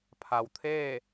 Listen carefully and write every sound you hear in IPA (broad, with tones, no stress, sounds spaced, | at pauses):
pʰ a˩ w t̪ʰ eː˥˨